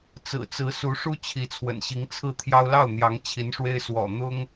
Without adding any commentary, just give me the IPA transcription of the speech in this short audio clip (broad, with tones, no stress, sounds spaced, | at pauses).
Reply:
t͡s ɹ̩˨˩ t͡s ɹ̩˧˥ s u˧˥ ʂ u˥ t͡ɕʰ i˧˥ t͡sʰ w ə̰˨˩ n ɕ i˧˥ ŋ t͡sʰ ɹ̩˥˩ t̪ʰ j ɑ˥ ʊ̯ l ɑ˥˩ ʊ̯ n̪ j ɑ˧˥ ŋ t͡ɕʰ i˧˥ n ʂ w e˥ ɪ̯ s w ɔ̰˨˩ n̪ ʊ˥ ŋ